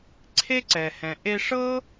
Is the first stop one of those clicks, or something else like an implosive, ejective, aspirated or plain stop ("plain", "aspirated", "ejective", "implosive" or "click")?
click